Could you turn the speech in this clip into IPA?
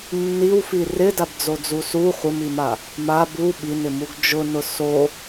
nː i w f i r ɪ d a b d͡z o d͡z u s u χʷ ɪ m i m a | m a b u ɓ i n ɪ m u ɡ d͡ʒ ʊ n ʊ s o

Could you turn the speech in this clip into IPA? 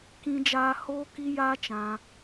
k ĩ˦ d͡ʒ aː˦ h oː˦ k i˦ j aː˦ t͡ʃ ã˧

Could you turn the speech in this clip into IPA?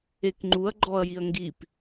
e k ŋ͡ǃ u ɐ̯ ɡ͡ǃ ɔ ɐ̯ j i ɐ̯ ŋ ɡ i p

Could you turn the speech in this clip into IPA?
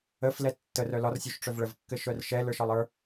ə f l ɛ tː ə r œ l ɒ r sʲ o ʃ ʈ͡ʂ œ v ɭ ə v kː ɘ ʃ œ r ʃ ɛ l ə˞ ʃ ɒ lˠ ə˞

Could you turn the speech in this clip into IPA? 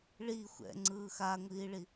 ɭ i xʷ ɛ̰ ŋ͡ǀ ɯː x a ŋʷ iː ɭ i

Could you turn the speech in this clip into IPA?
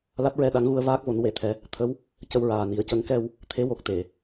l a˦˥ t̚ ɹ ɛ˧ ɗ a˧˥ ŋ ɣ u˧ ə̯ v aː˦˥ k̚ v o˨˩˦ n w e˨˩˦ t̪ʰ ɛ˨˩˦ | t̪ʰ ə˧˥ w | c ə˧ w ɹ aː˨˩ n i˨˩˦ ə̯ c ə˧˥ ŋ k ɛ˧ w | t̪ʰ e˧˥ w o˨˩ k̚ t̪ e˨˩˨

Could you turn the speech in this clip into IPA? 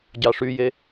ɟ ɑ ʂ y j e

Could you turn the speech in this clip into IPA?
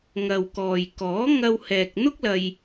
ŋ ɐ˨ w k ɔː˨ j k ɔː˨˥ ŋ ɐ˧ w h ɛː˨ k̚ n̪ ʊ˥ k̚ l ɐ˧ j

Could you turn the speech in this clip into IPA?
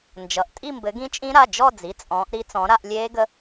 n d͡ʒ ʌ˩˧˩ ʔ tʼ i˥˧ m b ɘ˨˦ ɡ ĩ˦˥ t͡ʃʼ ĩ˦˥ ɾ a˩˧˩ d͡ʒ ɔ˥˧ d͡z i˩˧˩ t͡sʼ ɔ̃ː˨˦ ʔ ɾ i˦˥ t͡s ɔ̃˨˦ ɾ a˥˧ ʔ lʲ eː˦˥ ɡ ə˦˥

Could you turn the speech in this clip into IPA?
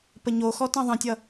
p ə ɲ o x ɔ t ɑ̃ ðˤ ə̃ tʲ ʌ

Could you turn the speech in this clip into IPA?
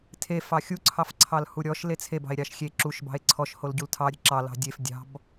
tʰ e f ɑ xʲ u ǀʰ ɑ f ǀʰ ɑ l h u ɾʲ ɔ ʃ l e t͡sʰ e b ɑ̤ e̯ ɾʲ ɑ ʃ xʲ e ǁ u ʃ b ɑ̤ e̯ ǀʰ ɔ ʃ h o l ɟ u l tʰ ɑ ɾʲ ə̤ ǁ ɑ l ɑ̤ dʲ e f dʲ ɑ̤ b

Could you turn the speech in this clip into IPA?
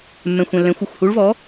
mː ɛ̃˧˩ xʷ ɛ̃˧˩ lː ɛ̃˨˥ xʷ ʌ˧˩ xʷ h u˨˥ ɭ v ɔ˨˥

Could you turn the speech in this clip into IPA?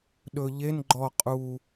ɗ ɵ ʎ e n ɡ͡ǃ ɔ qʼ u

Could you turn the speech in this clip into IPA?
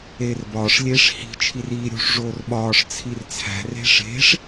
eː r b ɒː ʂ lʲ eː ʂ h i̤ t͡ʃʰ i r iː ɾʲ ṳ ʂ ʐ oː r ɓ ɒː ʂ t͡sʰ i r t͡sʰ æ̤ r e̤ ʂ e̤ ʂ

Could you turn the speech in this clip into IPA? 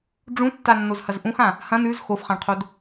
ɖ͡ʐ ũ tː a nː o z h ɐ z ʔ ũ x ã | h ɐ̃ n ʉ z x o f χ ã ɳ qʰ o d

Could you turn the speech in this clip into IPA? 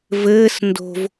v ɘː s n d o̤ v

